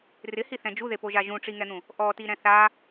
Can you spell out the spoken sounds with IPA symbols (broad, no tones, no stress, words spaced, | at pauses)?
rɪhiθɛ̃ d͡ʒuðepoʒa ʒũʈ͡ʂiŋɛn̪ũ | ʔɔti ɾɛ̃θa